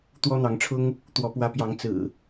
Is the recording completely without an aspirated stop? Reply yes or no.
no